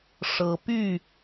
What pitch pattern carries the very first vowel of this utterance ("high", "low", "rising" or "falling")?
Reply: rising